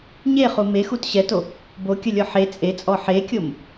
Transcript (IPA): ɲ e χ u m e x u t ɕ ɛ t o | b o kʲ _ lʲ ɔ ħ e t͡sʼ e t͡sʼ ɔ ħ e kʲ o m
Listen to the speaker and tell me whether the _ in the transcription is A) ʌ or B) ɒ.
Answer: A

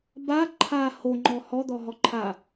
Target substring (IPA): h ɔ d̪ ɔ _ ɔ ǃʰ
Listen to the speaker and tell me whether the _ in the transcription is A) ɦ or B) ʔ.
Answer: A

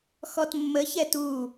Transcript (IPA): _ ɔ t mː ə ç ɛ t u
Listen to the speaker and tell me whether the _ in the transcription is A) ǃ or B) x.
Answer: B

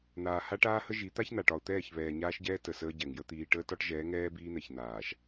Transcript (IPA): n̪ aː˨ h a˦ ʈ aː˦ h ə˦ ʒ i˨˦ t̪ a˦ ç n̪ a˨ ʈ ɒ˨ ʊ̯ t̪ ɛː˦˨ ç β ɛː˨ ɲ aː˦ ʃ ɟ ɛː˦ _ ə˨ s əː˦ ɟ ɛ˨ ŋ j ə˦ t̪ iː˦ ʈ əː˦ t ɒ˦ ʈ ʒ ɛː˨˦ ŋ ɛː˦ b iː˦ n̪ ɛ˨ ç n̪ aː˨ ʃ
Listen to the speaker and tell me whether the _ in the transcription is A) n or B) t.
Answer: B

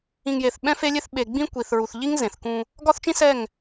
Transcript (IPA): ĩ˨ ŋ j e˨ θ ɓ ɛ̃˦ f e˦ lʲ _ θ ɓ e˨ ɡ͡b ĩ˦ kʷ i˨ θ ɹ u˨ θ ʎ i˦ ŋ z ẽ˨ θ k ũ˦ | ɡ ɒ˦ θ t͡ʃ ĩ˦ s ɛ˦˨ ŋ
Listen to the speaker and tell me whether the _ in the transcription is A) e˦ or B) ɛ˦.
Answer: A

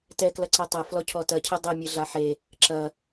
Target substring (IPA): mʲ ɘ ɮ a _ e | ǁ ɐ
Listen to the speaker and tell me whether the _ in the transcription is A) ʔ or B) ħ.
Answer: B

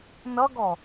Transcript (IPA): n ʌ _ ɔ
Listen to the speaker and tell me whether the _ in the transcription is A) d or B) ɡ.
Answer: B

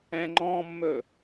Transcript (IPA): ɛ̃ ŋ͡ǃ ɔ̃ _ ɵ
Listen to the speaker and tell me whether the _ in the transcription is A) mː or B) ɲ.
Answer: A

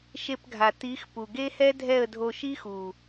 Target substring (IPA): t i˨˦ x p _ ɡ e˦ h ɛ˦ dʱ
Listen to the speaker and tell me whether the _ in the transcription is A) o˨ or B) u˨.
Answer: B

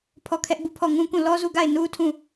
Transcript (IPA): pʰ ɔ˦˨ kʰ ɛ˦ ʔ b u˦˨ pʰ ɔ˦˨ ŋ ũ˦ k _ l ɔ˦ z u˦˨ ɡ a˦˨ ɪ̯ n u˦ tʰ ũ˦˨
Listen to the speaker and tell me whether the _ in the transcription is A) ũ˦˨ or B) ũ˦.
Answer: A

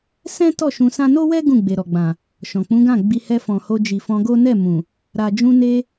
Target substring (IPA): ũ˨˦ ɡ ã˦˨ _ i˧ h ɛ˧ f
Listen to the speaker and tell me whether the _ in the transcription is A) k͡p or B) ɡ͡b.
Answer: B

